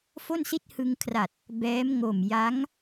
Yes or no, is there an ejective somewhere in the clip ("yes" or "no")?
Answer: no